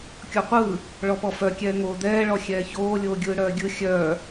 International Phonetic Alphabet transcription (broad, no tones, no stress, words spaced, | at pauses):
kʲɔqʷɯː | ɭɔpɔfœkʲɛː ŋoːd̪ɛːɭɔ xʲɛːçoː lʲoːɡʲɯːɽœːɡʲɯ xʲœː